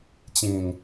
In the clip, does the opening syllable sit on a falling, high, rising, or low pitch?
low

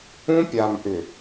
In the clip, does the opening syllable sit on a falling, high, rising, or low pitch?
high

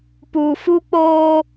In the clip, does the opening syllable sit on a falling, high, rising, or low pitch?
low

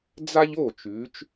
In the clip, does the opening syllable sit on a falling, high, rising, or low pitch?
high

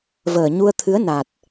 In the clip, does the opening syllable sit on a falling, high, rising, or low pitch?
low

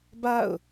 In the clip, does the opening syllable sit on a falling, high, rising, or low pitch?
falling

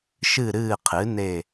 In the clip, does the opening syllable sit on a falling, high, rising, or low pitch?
falling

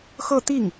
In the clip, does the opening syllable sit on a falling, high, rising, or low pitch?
falling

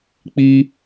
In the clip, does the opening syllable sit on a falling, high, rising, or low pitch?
high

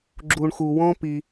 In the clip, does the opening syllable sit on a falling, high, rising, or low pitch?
low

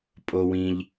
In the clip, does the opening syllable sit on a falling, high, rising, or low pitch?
low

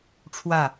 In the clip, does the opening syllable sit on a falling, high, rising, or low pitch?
falling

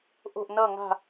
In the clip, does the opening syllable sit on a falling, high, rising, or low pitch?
falling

